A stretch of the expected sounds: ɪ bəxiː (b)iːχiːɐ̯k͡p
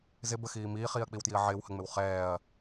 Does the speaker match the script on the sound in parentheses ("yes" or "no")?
no